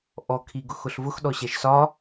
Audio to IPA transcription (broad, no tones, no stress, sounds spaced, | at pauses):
ʔ ɔ kʰ i ɡ ʊ x ʊ ɬ v ʊ x ɗ ɔ ɕ ɛ ʃ s ɒ